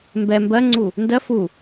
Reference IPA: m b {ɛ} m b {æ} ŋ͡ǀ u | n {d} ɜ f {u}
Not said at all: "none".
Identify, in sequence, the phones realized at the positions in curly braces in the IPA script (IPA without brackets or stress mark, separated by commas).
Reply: ɛ, ɜ, d, u